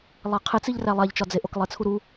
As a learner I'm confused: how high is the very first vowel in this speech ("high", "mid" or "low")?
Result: low